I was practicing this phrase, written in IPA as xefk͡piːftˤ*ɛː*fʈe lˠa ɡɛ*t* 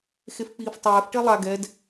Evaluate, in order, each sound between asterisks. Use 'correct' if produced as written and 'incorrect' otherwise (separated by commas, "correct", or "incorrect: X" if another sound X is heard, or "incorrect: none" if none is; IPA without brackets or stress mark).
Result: correct, incorrect: d